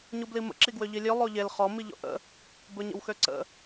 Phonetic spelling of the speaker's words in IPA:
ɲ u b l i m ə̰ ǁ i ɡ w ø ʎ i lʲ ɵ lˠ o ʎ e l χ ɔ m i ʎ ɔ̰ ʔ ə̰ | b ɵ ɲ ə̰ w x ø ǀ ə̰

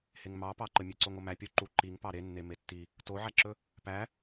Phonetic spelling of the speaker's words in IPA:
h e ŋ m ɑ p ɑ ǃ ə mʲ e ǀ o ŋ o m æ pʲ o ǃ u ǃ i ŋ p ɑ ɾ e nː e m e tː i | t o ʕ æ ǁ ɵ | p æ

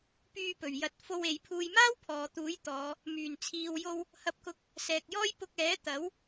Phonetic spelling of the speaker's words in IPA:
p yː˧ p ɵ˨˩ ɥ j ɐ˨˥ t̚ f o˧ w e˨˧ j pʰ uː˧ j m aː˥ w pʰ ɔː˨˧ t̪ uː˨˥ j t̪ ɔː˨˧ | m yː˨˩ n t͡sʰ iː˨ w j o˧ w | h ɐ˧ p̚ k ʊ˧ k̚ | s ɛː˨ k̚ j ɔː˥ j p ʊ˧ k̚ ɛː˨˥ t̪ ɐ˨˥ w

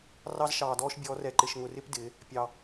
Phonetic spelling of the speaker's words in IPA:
r ɑ˥ z ʃ ɑː˧ d ɔː˥ ʃ bʲ ɔː˧˥ r ɛ˧ ǃ ɪ˧ ʃ ŋ ʊ˧ r ɪ˥ p d ɪː˩˧ | pʲ ɑ˧

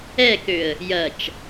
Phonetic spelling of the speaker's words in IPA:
ɛ k ø ə̯ | j ɐ t͡ʃ

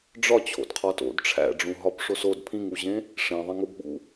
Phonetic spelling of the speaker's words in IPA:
ɖ͡ʐ ɒ t͡ɕʰ o̰ d qʰ ɒ t o̰ d ʈ͡ʂʰ æ̰ ɖ͡ʐ ũ ɦ ɒ b ʂ o s o d pʰ ĩ ŋ u ʑ ẽ | ʂ ẽ ðˤ ẽ ŋ o b ɓ ṵ

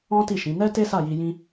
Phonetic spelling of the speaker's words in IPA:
ɔ̃˦ t i˦˨ ʃ ĩ˨˦ n ɛ˦ t e˦ s a˦˨ j i˧ j ĩ˦

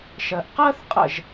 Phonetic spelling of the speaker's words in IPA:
ʃ ɜ˨ ʔ q ɜː˥ θ qʼ ə̰˥˨ ʒ

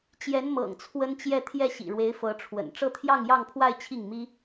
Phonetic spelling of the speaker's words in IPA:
t͡ɕ j ɛ˧˥ n m ɤ̰˨˩ ŋ t͡sʰ w ə˥ n t͡ɕ j ɛ˥˧ t̪ʰ j ɛ˥˩ ɕ ḭ˨˩ ɻ w e˧˥ ɪ̯ f ɤ˧˥ ʈ͡ʂʰ w ə̰˨˩ n ʈ͡ʂ ɤ˥˧ t̪ʰ j ɑ˥˧ ŋ j ɑ˥˧ ŋ pʰ w a˥˧ ɪ̯ t͡ɕʰ i˥˩ ŋ m i˥

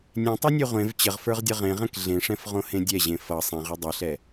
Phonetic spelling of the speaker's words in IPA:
nʲ ẽ tˤ ɛ nʲ ɛ ʁʷ ẽ v t͡ɕ ə ʁ f ə˞ ʁ dʲ ʌ ʁ ẽ ʁ ɛ̃ k ɮ ẽ ʂ ɛ̃ f ʁ õ h ẽ dʲ ɛ ʑ ẽ f ʌ sˤ ɛ̃ ʁ ɛ dˤ ɛ ɬ ɛ

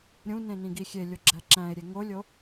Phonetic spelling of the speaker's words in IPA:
ɾʲ ũ n ẽ n ĩ ɡ i xʲ e lʲ o ɡ͡ǁ æ ǁ æ̃ e̯ ɾʲ e ŋ o lʲ o

